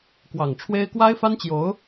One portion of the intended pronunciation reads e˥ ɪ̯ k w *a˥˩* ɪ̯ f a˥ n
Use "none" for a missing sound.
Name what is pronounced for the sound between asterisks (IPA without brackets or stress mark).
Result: a˥